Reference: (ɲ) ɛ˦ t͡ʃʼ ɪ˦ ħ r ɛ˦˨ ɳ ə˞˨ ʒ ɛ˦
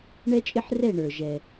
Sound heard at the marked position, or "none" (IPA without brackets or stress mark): ɳ